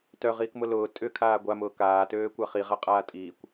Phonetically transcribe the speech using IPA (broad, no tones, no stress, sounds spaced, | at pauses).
t œ ʁ iː k m ʊ l ʊː tʼ ʏ kʰ aː ɡʷ a m ʊː k aː t øː kʷ a χ i ʁ a qʼ aː tʼ iː kʷ